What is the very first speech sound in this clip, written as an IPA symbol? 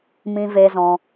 m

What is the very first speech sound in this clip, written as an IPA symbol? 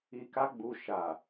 i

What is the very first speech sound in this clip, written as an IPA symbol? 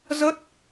z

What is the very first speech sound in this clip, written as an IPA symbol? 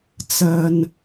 t͡s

